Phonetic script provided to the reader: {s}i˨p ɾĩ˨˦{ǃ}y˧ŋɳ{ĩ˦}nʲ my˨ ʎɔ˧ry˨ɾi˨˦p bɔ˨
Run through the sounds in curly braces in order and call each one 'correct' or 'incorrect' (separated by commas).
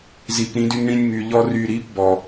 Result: incorrect, incorrect, incorrect